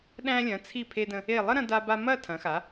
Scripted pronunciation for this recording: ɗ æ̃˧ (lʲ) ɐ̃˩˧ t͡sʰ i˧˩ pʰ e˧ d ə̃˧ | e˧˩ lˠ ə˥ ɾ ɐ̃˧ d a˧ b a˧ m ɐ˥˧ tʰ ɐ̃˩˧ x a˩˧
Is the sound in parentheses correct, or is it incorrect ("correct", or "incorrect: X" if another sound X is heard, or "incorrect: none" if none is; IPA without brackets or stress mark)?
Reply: correct